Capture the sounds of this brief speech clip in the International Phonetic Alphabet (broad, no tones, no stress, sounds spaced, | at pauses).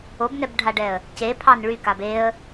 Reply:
o b n ɛ b ɖʱ a ɖ ɛ ə̯ | c e pʰ ɑ n ɭ y k a b e ə̯